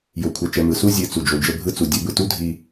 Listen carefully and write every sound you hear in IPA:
jo˨kʷʰɛ˨t͡ʃɛ˨ mɯ˨su˦ zʲɨ˨ t͡su˨d͡ʒo˨ d͡ʒə˦˨bʱɯ˦t͡su˨ dʲə˨˦bɯ˨tu˦ dʱi˦

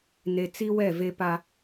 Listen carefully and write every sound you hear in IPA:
ne˨ t͡si˦wɛ˦˨ve˦pa˦

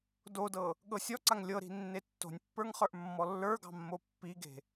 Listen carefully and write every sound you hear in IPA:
dodɤ | ɠɤsʲɔǀaŋ lʲɤɾi̤ nːetːo̤nʲpːə˞ŋ χə˞ʔmːɔlːə˞ɡɑ̤ mːopːiɡe̤

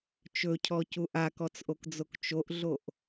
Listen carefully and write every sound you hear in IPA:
t͡ʃɵcʰɔcu ʔakɔt͡sʔokd͡zok t͡ʃoʔɮoʔ

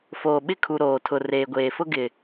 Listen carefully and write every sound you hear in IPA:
foː˨ɓɪ˦kʰu˨ ɾoː˨tʰʊ˨ reː˨ɡʷeː˨fʊ˦ ɡɪ˨

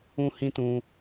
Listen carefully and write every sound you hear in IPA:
ũ˧ hĩ˦tũ˧

